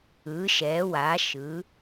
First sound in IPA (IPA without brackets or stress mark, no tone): ɯ